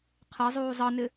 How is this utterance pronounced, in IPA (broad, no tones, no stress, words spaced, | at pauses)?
qʰɛzˤuː zˤʌnɪ